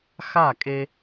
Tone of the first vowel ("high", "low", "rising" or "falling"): falling